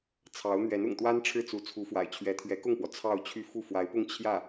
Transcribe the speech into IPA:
t͡sʰ ɑ˧˥ ʊ̯ n̪ ɥ ɛ˧˥ n ʊ̰˨˩ ŋ t̪ w a˥ n ʈ͡ʂʰ ɻ̩˥˩ t͡s u˧˥ t͡sʰ u˧˥ f w a̰˨˩ ɪ̯ t͡ɕʰ ɥ ɛ˧˥ t̪ʰ ɥ ɛ˧˥ k ʊ˥˩ ŋ p w ɔ˩ t͡sʰ ɑ˥˧ ʊ̯ t͡ɕʰ y˥˧ f u˥˩ f w a˧˥ ɪ̯ p ʊ˥˧ ŋ t͡ɕʰ j ä˥˩

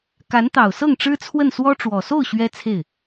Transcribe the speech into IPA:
k a˧˥ n t̪ ɑ˨˩ ʊ̯ s ɤ˥˩ ŋ ʈ͡ʂ ɻ̩˥ t͡sʰ w ə˥˩ n s w ɔ˥ ʈ͡ʂ w ɔ˨˩ s o˥˩ ʊ̯ ɕ ɥ ɛ˥ t͡sʰ e˥˩ ɪ̯

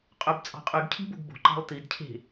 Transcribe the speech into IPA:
qʼ ø b t͡sʼ ɑ̤ qʼ y ɡ cʰ i̤ b o̤ ɡ b o̤ ǃ ɑ̤ lˠ t i d cʰ e̤

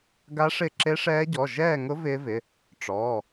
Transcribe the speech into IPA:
ɡ a˦˥ ʂ ɪ˥˧ ǁ e˦˥ ʂ ɛː˦˥ ɟ ɔ˩˧˩ ʒ ɛː˥˧ ŋ ʊ˦˥ v ɪː˦˥ v ɪ˩˧˩ | ʈ͡ʂ ɔː˩˧˩

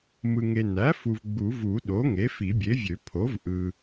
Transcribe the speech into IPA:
m ɯ˨ ŋ e˨ n æ˩˥ f u˨ v ɡ͡b u˨˩˦ v u˨˩˦ ɗ o˩˥ ŋ e˩˥ f i˨˩˦ bʲ e˩˥ vʲ ø˨˩˦ pʰ o˩˥ v ʔ ɯ˨

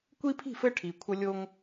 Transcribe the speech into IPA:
kʷ i˦ pʰ i̤˦˨ f ɘ˦ ʈʰ i˨ kʷʰ ə˦ lʲ o˦ ŋ

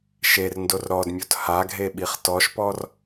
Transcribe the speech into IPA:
ʃ e r n d o r ɾ ɔ d mʲ o t h a ɡʱ e ɓ i χ t ɔ ʃ p ɔ r

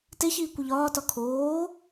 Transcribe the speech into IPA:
t e ç iː kʷ i ʎ ɒː t ɒ kʰ oː

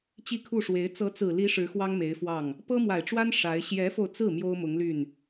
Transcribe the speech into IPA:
t͡ɕ i˥˧ kʰ u˥˩ ʂ w e˧˥ ɪ̯ t͡s ɤ˧˥ t͡s ɹ̩˨˩ l i˧˥ ʂ ɻ̩˧˥ x w ɑ˥ ŋ m e˧˥ ɪ̯ f w ɑ˥˩ ŋ | p ɤ˥ m w a˨˩ ɪ̯ ʈ͡ʂ w a˥ n ʂ a˧˥ ɪ̯ ɕ j ɛ˧˥ f o˧ ʊ̯ t͡s ɹ̩˥˩ m j o˥ ʊ̯ m ʊ˧˥ ŋ l y˥˩ n

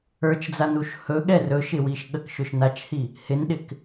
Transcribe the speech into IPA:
ə˞ t͡ʃ d͡z a n u ʃ h ɵ ɠ ɛ r ɵ ʃ ɪ w i ʃ ɠ ə k ʃ ɵ ʃ n a t͡ʃ h i | h ɪ n ɗ ɪ k

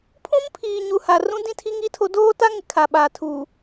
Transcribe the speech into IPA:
pʰ ũ˦ m pʰ iː˨ ɲ u˨ h a˨ r ũ˦ d ĩ˦ tʰ i˦ ŋ i˦ tʰ o˦ d oː˦ t a˦ ŋ ɪ˨ kʰ a˨ ɓ aː˨ tʰ u˨

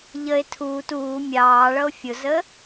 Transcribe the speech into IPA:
ʎ ə e̯ tʰ uː t uː mʲ ɑː ɭ ʌ o̯ fʲ ʊ z ə

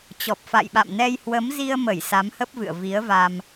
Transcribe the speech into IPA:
t͡ɕ ɔ˨˩ p̚ f a̰˧˨ j ɓ a̰˧˨ m n ɛ˧ j h w ə˨˦ m z i˧ ə̯ m ə˧˩ j s a˨˦ m h ə˦˥ p̚ v ɨ̰˧˨ ə̯ v i˨˦ ə̯ v a˧ m

